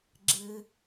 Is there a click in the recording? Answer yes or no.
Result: yes